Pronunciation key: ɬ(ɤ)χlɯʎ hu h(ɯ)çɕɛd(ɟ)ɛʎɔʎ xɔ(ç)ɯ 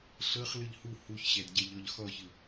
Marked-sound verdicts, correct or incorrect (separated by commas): correct, incorrect, correct, correct